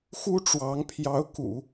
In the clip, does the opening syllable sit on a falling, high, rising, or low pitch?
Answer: high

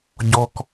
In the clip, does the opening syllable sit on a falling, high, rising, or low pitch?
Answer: high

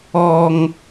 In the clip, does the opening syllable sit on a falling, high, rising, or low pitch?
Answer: low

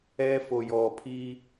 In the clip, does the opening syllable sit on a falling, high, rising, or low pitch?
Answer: high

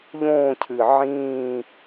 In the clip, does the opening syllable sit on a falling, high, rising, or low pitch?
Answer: falling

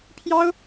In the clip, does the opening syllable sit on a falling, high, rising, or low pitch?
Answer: high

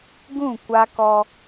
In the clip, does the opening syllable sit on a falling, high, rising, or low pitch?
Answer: falling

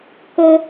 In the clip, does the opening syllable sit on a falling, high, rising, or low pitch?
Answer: high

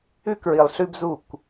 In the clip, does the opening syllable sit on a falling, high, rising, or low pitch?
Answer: high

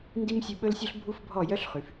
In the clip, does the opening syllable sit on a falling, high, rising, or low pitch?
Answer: high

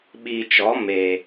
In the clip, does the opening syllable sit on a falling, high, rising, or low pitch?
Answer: low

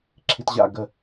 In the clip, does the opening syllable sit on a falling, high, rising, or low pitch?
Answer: low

